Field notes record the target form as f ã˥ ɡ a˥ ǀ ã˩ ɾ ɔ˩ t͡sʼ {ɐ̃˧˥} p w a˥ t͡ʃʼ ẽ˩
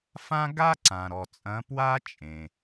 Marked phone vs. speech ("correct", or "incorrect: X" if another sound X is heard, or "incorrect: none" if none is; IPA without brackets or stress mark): correct